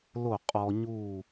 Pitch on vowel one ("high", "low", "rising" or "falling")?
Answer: falling